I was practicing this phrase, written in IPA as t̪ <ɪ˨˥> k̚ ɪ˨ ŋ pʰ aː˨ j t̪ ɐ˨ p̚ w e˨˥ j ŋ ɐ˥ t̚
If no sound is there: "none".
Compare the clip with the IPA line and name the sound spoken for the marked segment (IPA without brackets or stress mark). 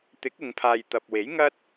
ɪ˨˥